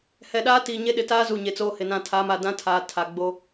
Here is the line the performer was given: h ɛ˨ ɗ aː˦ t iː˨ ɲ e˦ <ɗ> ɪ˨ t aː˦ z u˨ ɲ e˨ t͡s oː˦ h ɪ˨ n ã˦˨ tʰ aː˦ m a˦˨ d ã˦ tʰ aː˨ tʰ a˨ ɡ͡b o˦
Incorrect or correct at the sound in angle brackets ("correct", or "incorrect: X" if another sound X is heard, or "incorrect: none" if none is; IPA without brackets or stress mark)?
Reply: correct